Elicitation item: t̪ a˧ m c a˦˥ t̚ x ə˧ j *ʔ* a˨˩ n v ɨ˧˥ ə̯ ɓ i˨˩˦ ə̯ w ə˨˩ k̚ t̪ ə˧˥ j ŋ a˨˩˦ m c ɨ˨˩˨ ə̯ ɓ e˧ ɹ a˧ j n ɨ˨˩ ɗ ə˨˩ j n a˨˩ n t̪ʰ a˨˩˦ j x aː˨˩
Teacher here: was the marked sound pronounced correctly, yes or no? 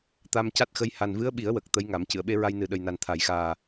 no